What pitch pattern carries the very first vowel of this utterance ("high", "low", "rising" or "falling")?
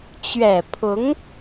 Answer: low